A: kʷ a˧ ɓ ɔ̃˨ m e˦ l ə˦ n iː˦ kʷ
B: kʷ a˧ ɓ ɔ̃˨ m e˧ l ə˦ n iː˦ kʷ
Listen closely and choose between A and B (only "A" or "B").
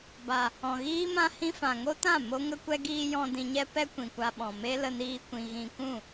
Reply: A